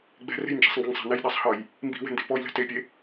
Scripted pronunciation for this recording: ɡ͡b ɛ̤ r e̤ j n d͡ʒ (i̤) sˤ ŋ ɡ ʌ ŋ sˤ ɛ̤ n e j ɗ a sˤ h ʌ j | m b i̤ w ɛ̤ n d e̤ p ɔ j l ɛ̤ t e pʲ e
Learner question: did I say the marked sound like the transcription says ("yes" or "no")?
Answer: yes